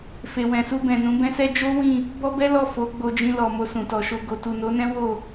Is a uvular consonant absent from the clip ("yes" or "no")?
yes